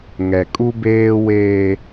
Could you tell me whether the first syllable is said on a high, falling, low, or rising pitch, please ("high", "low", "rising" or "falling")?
low